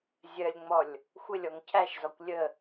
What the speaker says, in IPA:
zʲ ɜ lʲ ŋ͡m ɔ lʲ | xʷ ɪ lʲ ɔ ŋ cʰ æ ʃ z ɔ kʷ lʲ ə

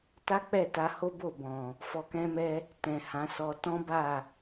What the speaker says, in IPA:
t a˦ k͡p ɛ˦˨ t a˧ h o˦ b o˦˨ b ɔ̃˨ | f ɔ˧ k ɛ̃˦ m ɛ˦ | t ɛ̃˨ h ã˨˦ s ɔ˧ t ɔ̃˦ b a˦˨

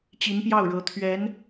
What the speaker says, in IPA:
t͡ɕ i˧˥ n p j ɑ˥˩ ʊ̯ ɻ ɤ˧˥ t̪ʰ ɥ ɛ˧˥ n

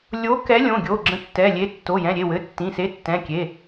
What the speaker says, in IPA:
lʲ o˨˥ k ɛ˨˥ lʲ õ˩˧˩ ɡʲ o˩˧˩ ɡ͡ǁ ə̃˨˥ tː ɛ˩˧˩ lʲ e˨˥ tː o˩˧˩ j ɛ̃˩˧˩ ɾʲ e˩˧˩ w ɘ˩˧˩ tː ĩ˩˧˩ s e˨˥ tː ɛ̃˩˧˩ kʲ e˩˧˩

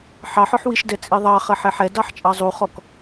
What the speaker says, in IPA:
ħ ɑ ħ ɔ ħ w i ʃ d ɛ t͡sʼ i ðˤ ɑ χ ɐ ħ ɛ ħ ɛ d ɑ ħ t͡ʃʼ ɑ zˤ u χ ɔ k

